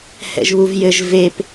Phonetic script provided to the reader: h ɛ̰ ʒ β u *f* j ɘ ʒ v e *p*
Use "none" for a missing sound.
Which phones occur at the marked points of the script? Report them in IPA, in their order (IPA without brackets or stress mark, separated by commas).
v, p